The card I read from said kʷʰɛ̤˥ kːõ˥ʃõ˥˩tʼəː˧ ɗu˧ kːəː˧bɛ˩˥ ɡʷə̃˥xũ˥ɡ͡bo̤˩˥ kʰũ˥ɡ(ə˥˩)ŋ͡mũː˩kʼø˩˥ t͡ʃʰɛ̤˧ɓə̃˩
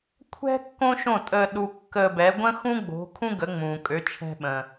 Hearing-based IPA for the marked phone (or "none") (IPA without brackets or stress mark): ə˩˥